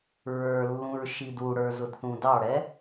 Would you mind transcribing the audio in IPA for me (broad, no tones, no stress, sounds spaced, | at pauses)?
ɹ ə˞ lː ũ ɹ ʃ i d u ɽ ə˞ z ʊ d θ ũ d ɑ ɽ ɛ